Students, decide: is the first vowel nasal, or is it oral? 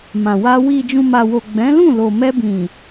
nasal